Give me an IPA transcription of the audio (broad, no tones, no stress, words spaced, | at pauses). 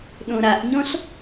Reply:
ɗõɾaʔɲɔ̃ɬ